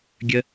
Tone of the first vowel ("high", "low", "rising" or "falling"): high